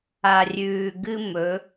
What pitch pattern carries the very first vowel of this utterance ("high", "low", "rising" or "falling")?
low